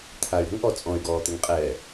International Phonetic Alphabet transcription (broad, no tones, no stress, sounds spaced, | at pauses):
t̪ʰ a y̯ ɾ ṳ ŋ ʔ ɔ t͡sʼ ɔ̃ y̯ ɡ ɔː t̪ ɘ ŋ qʼ ɛː